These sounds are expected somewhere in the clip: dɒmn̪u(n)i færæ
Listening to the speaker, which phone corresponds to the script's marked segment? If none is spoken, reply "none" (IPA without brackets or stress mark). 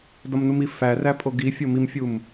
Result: m